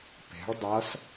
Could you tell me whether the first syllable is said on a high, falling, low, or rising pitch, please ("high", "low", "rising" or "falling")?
rising